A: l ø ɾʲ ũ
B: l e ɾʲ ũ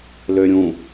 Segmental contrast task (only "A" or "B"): A